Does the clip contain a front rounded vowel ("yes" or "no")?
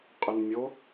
yes